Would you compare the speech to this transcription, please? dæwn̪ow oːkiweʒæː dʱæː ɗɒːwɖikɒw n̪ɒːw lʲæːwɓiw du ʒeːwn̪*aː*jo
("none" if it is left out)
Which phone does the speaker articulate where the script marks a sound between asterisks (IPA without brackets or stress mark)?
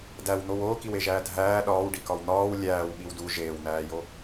æː